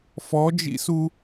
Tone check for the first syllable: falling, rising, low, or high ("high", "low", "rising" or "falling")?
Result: rising